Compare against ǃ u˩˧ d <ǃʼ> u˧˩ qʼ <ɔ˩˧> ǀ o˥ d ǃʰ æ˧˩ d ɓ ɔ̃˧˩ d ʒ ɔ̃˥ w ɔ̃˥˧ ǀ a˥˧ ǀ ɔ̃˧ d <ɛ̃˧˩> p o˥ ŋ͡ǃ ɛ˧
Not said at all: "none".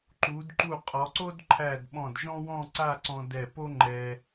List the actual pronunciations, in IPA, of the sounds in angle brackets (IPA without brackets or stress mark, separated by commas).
ǃ, ɔ˩˧, ɛ˧˩